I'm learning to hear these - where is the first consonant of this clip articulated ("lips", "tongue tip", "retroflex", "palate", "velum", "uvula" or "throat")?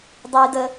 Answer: tongue tip